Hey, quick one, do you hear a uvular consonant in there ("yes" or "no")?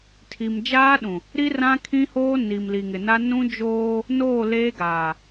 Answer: no